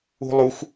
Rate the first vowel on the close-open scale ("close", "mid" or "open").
close